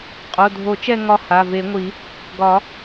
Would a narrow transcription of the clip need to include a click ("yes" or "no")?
no